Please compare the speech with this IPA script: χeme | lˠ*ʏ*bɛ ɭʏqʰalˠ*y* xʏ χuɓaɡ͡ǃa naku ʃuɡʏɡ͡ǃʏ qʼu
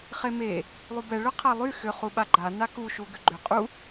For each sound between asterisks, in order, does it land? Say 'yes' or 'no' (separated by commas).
no, yes